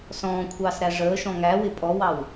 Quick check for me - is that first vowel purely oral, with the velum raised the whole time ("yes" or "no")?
no